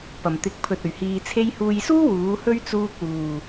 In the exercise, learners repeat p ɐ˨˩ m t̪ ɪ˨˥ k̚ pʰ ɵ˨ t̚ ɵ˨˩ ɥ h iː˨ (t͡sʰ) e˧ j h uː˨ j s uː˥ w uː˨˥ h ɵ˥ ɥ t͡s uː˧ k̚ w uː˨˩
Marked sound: correct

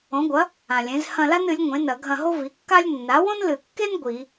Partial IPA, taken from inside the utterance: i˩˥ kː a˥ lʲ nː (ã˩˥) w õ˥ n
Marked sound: incorrect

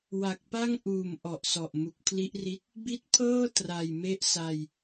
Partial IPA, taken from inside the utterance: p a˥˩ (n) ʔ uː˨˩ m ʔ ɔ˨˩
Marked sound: incorrect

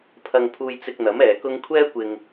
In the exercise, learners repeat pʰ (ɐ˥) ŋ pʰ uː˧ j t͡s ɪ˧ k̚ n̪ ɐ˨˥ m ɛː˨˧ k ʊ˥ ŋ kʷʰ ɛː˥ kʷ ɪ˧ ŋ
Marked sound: incorrect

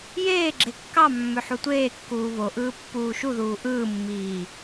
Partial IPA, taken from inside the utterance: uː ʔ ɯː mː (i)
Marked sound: incorrect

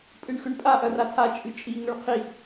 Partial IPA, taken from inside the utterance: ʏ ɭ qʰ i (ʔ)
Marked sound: correct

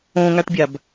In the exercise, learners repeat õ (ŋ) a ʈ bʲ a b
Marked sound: correct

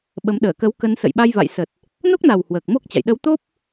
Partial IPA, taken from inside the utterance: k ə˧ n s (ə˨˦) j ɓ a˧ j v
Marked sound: incorrect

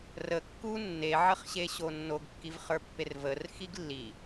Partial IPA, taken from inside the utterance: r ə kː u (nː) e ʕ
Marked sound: correct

